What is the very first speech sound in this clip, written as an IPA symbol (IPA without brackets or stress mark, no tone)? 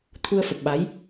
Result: t̪ʰ